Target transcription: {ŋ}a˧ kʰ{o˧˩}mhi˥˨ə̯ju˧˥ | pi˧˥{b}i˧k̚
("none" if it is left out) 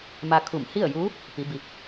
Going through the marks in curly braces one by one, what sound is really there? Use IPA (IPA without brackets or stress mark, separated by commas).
m, u˧˩, b